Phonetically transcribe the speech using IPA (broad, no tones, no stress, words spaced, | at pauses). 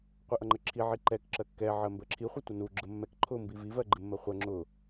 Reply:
qʷɪʔʌŋ͡ǃəǁʰi ʕiǃɛk ǁɜkːɛ ʕɜmbəǁʰi χʷətʷənu ɡ͡ǁəmːɛk ǃʰʊ mbivi vɜɡ͡ǃɪmːɜχʷɜ ŋ͡ǁʊ